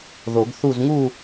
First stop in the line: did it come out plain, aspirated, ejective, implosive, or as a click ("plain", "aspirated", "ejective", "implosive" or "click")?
plain